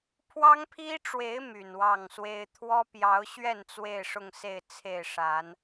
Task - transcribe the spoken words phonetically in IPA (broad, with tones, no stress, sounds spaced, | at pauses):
pʰ w ɑ˦ ŋ pʰ i˦ ʈ͡ʂ w e˨˦ ɪ̯ m y˨˩ n w ɑ˥˨ ŋ s w e˦ ɪ̯ t̪ʰ w ɔ˦ p j ɑ˨˦ ʊ̯ ɕ ɥ ɛ˥˨ n t͡s w e˥˨ ɪ̯ ʂ ʊ˥˨ ŋ s e˥˨ ɪ̯ t͡sʰ e˥˨ ɪ̯ ʂ a˨˦ n